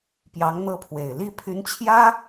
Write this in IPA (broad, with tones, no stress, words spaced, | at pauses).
pjɑ˧˥ŋn̪ɤ˥˩pʰwe˨˩ɪ̯ li˥˩pʰy˧˥nt͡ɕʰjä˥